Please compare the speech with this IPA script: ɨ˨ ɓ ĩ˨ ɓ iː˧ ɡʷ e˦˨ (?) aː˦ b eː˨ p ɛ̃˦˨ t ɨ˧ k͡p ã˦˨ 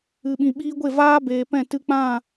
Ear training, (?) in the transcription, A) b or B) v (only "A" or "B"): B